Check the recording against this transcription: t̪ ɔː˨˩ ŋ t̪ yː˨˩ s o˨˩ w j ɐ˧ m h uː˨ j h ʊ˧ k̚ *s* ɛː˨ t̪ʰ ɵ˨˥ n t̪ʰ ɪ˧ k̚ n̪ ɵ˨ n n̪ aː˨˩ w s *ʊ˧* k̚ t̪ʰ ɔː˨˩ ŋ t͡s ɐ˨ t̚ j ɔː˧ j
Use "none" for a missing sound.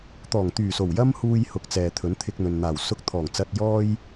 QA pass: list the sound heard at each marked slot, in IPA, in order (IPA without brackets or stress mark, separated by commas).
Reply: t͡s, ʊ˧